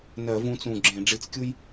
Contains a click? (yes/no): yes